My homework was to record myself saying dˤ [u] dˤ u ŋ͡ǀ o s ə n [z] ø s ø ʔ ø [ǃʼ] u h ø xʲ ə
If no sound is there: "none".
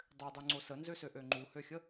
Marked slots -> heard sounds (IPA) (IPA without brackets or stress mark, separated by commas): ø, z, ŋ͡ǃ